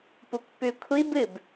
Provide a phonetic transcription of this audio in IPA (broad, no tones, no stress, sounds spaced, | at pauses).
p u k p ʉ kʷʰ i b ɨ b